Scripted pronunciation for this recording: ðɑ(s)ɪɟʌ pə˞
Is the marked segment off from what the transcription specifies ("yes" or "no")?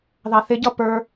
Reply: yes